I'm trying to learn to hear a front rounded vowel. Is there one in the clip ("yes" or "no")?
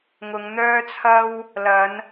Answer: yes